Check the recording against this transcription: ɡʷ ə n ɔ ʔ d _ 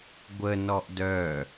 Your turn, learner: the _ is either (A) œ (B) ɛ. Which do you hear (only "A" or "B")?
A